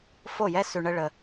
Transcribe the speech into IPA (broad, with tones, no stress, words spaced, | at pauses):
fo˦˨jɛ˦ sʉ˧ɳə˦ɭə˧